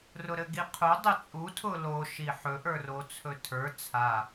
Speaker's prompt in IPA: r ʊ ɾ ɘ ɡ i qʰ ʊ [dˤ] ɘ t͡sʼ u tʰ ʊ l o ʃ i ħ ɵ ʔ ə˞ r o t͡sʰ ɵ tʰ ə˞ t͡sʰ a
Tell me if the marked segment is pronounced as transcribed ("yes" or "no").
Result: yes